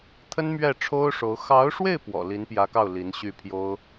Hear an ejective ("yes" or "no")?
no